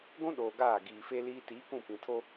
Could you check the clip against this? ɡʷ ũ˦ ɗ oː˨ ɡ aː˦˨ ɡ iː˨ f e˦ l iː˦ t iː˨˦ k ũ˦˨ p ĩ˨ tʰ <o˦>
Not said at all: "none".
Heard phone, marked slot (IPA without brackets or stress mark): o˦